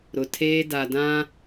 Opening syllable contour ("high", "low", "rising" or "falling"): low